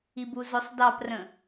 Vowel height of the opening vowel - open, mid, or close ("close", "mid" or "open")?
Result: close